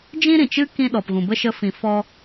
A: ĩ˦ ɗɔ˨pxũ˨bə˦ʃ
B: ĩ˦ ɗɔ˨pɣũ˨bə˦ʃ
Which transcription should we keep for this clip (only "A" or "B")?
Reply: B